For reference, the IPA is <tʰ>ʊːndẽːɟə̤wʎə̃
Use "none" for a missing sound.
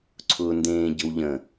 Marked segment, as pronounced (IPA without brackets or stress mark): ǀʰ